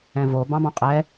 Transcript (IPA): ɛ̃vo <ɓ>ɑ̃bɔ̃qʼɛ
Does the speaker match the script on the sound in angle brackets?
no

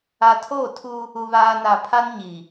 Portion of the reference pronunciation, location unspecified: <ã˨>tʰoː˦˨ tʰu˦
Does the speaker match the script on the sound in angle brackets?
no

